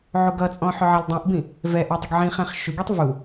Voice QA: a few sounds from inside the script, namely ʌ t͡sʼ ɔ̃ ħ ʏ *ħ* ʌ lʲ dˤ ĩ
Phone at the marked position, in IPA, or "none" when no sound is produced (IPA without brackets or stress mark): ʕ